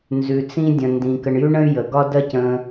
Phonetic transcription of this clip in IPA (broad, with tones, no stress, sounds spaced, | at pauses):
n z ʉ˩ t͡s ĩ˧ dʲ ə̃˩ n d ĩ˩ k ə˩ ɳ j ʉ˥ ɳ ə̃˥ y̯ j ə˩ ɡ ɒ˥ d ɜ˥ c ə̃˧